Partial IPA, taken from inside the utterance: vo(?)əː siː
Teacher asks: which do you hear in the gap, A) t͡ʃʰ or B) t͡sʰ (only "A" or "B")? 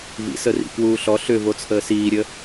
B